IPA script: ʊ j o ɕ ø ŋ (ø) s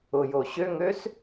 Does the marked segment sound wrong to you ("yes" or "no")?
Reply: no